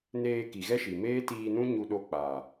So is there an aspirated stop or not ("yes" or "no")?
no